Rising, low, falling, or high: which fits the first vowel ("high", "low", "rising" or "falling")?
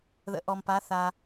rising